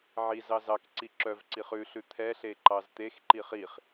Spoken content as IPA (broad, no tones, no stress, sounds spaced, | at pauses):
ʕ i z ɑ z ɑ k ǀ i ǁ œ v ǀ i χ ʉ ɬ ʉ t̪ʰ ɛ ɬ e ǃ ɑ z t̪ e x ǃ i χ i χ